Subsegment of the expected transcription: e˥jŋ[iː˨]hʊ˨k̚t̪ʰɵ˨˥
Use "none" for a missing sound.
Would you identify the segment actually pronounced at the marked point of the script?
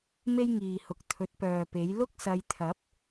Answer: iː˨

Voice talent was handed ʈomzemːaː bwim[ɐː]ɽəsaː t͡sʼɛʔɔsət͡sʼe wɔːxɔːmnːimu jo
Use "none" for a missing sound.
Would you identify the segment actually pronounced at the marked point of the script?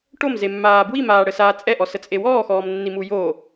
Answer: aː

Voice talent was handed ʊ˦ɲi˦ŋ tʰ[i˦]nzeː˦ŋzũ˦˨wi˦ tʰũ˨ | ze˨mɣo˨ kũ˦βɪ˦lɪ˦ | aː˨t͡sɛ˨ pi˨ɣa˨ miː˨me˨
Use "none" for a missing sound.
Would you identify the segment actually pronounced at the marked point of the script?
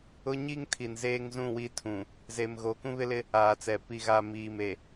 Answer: i˨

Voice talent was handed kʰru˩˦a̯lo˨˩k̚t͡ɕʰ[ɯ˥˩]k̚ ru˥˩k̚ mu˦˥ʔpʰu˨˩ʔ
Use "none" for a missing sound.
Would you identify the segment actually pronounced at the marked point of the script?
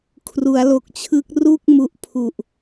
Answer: ɯ˦˥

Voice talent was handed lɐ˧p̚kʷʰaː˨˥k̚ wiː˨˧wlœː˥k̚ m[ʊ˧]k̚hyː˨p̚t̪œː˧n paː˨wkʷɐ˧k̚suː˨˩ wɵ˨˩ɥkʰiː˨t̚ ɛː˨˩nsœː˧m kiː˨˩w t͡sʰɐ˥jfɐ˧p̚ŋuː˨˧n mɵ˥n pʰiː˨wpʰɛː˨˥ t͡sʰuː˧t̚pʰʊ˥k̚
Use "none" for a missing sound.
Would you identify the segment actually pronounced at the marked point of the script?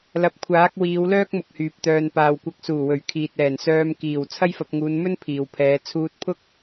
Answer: ʊ˨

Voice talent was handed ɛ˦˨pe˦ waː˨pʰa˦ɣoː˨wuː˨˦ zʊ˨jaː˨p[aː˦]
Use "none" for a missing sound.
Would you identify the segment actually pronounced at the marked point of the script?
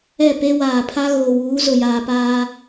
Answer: aː˦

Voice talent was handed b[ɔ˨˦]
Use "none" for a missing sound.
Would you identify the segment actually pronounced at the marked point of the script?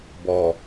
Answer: ɔ˨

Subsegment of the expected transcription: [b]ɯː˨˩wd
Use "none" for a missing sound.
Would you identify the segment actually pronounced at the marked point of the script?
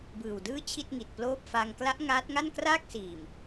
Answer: b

